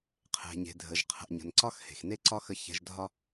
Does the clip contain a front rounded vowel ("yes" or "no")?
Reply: no